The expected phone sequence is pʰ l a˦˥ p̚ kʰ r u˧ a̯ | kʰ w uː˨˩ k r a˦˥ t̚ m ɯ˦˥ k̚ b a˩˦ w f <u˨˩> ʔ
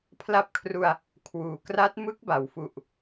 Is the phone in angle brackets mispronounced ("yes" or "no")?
no